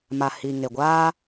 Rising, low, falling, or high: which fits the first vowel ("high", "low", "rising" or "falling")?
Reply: low